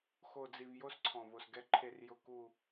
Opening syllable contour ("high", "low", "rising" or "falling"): low